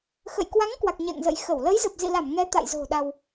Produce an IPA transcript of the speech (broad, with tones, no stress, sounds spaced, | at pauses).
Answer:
x ə̰˧˨ j k w a˨˦ ŋ k w a˨˩ k̚ ɲ ɛ̰˧˨ ŋ z ə̰˧˨ j x ə˧˩ w l ə˨˦ j z ə˨˩ p̚ z ḭ˧˨ l a˧˩ m ŋ ɛ˨˦ t̪ a̰˧˨ j z o̤˨˩ ɗ a˧ w